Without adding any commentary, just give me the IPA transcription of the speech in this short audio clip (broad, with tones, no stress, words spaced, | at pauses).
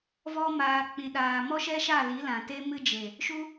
vɔ˧ maː˨k͡pĩ˨ ɗaː˨mɔ˦ʃɛ˦ʃa˦˨ li˨˦lã˨ te˦mɨ˦d͡ʒe˨ | ʃu˦